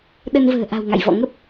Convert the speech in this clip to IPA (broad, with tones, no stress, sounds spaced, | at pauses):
ɗ ə˧ n v ə̤ː˨˩ ʔ a̤˨˩ w ŋ a̰˧˨ j v ɔ̰˧˨ ŋ ə˦˥ p̚